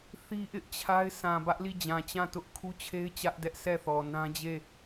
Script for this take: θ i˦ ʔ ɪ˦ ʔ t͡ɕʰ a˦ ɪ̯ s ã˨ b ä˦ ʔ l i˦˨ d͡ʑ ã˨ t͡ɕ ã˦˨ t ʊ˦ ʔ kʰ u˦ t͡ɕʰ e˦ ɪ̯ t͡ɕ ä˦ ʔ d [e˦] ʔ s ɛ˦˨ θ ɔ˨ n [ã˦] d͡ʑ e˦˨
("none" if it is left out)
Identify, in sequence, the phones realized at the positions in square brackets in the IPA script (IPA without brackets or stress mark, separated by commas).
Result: ɛ˦, ã˦